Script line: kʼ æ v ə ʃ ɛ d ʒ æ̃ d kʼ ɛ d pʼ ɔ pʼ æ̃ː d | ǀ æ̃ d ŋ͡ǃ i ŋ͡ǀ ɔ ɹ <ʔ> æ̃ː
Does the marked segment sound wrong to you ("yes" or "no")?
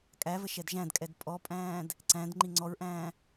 no